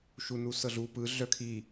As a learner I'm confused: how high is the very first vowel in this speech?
high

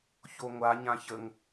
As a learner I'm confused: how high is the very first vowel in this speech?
mid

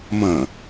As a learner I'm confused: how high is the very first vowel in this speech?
low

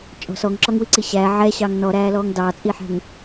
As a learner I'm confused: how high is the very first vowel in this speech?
mid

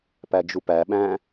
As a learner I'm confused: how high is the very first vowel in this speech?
low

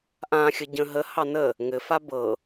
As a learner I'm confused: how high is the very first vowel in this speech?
low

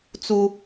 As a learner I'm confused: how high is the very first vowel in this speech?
high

